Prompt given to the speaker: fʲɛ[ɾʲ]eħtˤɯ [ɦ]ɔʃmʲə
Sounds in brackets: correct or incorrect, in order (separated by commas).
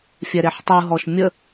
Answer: incorrect, correct